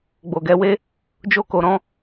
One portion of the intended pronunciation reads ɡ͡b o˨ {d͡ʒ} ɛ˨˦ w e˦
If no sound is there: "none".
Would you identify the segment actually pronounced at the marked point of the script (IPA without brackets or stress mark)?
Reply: ɡ